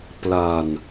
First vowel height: low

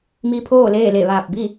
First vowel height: high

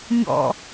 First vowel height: mid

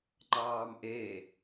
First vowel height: low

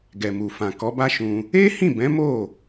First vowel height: mid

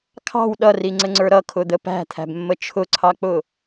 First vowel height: low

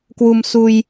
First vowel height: high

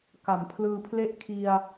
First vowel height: low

